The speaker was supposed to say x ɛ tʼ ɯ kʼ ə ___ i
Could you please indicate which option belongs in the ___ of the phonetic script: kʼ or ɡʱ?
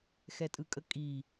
kʼ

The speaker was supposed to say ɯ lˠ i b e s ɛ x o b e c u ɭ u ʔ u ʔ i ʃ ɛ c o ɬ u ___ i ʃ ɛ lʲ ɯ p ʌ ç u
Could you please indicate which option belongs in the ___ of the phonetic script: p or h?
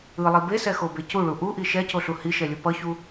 h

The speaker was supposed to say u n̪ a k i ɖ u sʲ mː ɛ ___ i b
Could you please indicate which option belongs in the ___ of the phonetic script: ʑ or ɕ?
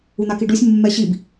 ɕ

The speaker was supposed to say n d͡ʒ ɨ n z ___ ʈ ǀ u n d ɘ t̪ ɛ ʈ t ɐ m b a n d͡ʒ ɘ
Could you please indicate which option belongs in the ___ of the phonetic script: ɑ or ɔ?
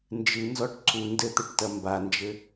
ɔ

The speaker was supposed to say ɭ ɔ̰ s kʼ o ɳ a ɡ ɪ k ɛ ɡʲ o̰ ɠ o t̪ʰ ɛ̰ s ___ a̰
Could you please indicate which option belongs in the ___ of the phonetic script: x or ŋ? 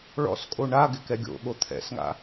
ŋ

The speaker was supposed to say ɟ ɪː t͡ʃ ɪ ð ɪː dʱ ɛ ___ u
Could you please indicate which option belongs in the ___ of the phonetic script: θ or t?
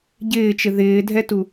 t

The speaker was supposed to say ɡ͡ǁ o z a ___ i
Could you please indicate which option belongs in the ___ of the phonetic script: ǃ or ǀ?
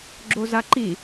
ǃ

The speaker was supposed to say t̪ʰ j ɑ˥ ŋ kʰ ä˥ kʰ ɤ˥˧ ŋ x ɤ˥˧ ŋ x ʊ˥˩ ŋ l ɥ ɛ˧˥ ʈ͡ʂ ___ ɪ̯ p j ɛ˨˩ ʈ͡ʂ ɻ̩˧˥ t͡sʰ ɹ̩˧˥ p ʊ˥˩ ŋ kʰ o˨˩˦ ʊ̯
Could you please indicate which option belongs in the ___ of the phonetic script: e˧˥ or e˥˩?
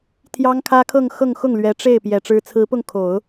e˥˩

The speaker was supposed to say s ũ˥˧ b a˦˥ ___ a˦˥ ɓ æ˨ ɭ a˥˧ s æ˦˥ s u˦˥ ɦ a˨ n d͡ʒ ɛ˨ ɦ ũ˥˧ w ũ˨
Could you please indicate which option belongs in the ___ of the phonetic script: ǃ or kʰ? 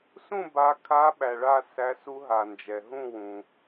kʰ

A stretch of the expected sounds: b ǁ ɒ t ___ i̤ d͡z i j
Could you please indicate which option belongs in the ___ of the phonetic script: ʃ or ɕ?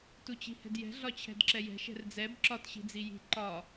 ɕ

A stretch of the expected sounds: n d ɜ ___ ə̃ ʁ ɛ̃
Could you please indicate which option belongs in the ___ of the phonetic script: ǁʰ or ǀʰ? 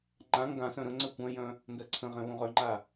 ǀʰ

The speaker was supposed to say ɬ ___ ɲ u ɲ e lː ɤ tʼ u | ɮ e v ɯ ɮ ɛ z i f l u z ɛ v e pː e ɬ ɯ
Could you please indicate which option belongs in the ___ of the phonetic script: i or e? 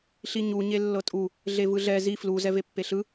i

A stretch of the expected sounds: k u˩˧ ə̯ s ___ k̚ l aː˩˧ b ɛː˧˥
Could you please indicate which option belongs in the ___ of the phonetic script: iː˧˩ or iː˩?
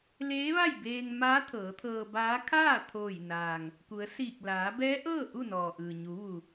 iː˧˩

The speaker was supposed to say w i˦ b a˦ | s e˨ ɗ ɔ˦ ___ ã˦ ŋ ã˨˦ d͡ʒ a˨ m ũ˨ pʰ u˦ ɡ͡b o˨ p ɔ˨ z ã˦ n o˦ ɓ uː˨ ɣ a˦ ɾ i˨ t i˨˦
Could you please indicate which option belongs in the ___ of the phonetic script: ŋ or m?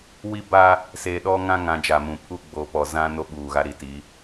ŋ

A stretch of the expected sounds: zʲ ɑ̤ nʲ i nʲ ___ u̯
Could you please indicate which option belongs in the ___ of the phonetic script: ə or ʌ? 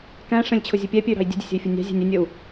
ə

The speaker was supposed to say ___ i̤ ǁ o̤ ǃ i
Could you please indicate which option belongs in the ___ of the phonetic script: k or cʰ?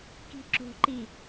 k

